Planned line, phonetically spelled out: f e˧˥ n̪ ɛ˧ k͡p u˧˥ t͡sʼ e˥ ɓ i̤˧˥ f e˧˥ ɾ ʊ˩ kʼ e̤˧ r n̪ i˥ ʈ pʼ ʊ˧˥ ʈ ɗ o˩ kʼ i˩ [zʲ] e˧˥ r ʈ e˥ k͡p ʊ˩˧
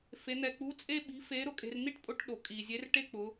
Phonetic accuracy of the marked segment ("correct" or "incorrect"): correct